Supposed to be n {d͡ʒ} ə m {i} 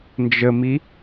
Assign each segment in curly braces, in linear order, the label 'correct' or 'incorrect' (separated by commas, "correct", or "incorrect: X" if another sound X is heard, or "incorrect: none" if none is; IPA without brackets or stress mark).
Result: correct, correct